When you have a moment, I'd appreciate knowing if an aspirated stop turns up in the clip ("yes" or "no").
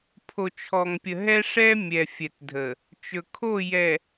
yes